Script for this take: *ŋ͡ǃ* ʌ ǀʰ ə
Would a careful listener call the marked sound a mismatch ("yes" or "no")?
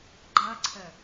yes